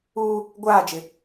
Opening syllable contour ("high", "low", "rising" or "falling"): high